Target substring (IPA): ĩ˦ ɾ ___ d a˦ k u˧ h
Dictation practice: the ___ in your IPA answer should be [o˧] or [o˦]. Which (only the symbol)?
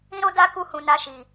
o˦